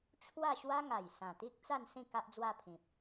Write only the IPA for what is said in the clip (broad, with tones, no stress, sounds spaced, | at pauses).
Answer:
t͡ɕʰ w a˥˧ ɕ w a˦ ŋ a˨˩ j s ã˨˩ t̪ i˦ k̚ t͡s a˥˧ n s ĩ˥˧ k a˦ ʔ d͡z w a˥˧ pʰ ĩ˨ p̚